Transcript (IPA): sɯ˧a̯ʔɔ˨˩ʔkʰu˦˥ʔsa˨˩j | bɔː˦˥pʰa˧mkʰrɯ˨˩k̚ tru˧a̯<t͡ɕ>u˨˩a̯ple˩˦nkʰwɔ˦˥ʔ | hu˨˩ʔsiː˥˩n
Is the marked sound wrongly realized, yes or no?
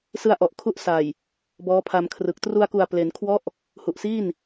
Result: yes